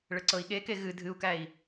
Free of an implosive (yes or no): no